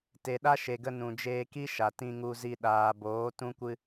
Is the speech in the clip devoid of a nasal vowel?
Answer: no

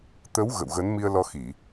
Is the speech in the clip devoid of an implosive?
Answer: yes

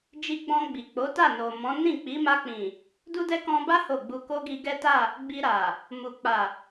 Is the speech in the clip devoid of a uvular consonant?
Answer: yes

